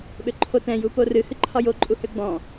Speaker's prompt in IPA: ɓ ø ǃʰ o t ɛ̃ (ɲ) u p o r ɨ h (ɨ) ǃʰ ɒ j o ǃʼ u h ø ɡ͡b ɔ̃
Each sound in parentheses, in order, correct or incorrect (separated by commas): incorrect, correct